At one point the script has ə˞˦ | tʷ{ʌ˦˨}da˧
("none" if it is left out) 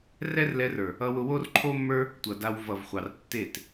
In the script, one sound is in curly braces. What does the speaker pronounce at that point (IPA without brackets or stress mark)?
ʌ˨